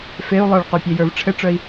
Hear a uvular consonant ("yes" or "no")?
yes